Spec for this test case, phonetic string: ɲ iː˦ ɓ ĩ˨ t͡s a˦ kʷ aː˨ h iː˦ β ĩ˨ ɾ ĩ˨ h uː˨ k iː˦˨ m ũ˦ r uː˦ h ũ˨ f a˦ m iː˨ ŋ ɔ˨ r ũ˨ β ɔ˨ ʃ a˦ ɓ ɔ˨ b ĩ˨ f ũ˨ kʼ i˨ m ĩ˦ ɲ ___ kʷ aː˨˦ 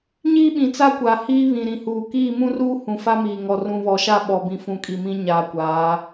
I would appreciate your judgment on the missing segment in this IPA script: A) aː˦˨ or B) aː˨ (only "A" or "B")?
B